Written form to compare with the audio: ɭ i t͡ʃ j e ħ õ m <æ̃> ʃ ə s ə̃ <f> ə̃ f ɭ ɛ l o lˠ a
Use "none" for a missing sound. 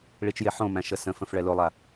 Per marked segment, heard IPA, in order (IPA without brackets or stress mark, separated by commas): æ̃, f